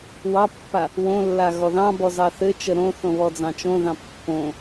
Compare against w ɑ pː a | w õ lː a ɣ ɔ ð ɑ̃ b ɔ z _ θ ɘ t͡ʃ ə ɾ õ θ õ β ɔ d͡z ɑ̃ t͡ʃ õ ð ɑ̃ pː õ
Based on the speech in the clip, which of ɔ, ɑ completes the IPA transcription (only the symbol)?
ɑ